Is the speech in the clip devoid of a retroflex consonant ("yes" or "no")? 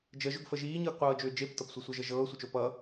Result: yes